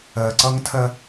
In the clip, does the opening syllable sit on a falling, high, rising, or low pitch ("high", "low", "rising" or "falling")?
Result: low